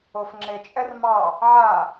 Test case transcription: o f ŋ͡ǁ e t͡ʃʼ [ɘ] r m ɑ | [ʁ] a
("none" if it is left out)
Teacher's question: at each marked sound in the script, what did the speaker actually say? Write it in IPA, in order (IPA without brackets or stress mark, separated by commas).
ɛ, ʕ